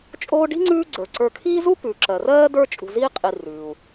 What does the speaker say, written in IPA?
t͡ʃʼoː˦ɖi̤˥ŋ͡ǀʉː˦ ɡ͡ǀə˞˩ ǀə˞˨kʰiː˥zu˥ pʉ˩ ǁɜ˩rɜː˥də˞˦ t͡ʃʼṳ˨ziː˦qʼi˨ rʉː˩u̯

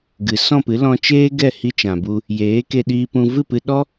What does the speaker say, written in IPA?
ɡɨ˨ sɔ̃˦˨pɨ˨˦ lɔ̃˧t͡ʃeː˦ ɡɛ˦˨hi˧t͡ʃã˨bu˧ | jeː˨˦ke˧ɗiː˧pũ˧ vɨ˦˨pɨ˧ ɗɔ˦

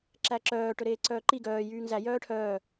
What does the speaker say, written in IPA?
ǁæǁœː ʈɵɾeːǀœːǃi ɡœː jyːŋzæ jœːʈʰœː

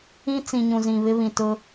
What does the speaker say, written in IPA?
ĩ˦ t͡sĩ˨ɲũ˨zĩ˨βɪ˦ βĩ˨tʊ˦

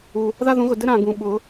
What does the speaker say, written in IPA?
u˩ | ða˦ðũ˨˩˦ɣʊ˩ dɘ˦ɾã˩ ɡũ˩ ɓʊ˨˩˦

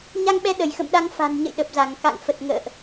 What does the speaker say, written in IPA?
ɲa˧ŋɓɛ˨˦ ɗə˧˩jxə̰˧˨mɗa˧ŋ fa̤˨˩nɲə̰˧˨j ɗə˨˩p̚za˧˩ŋ ka̰˧˨ŋ fə˨˩t̚ŋə̰ː˧˨ʔ

